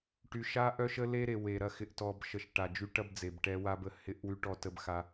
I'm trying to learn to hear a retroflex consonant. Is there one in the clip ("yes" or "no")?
yes